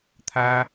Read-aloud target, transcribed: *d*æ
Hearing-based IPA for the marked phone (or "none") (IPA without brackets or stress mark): t̪ʰ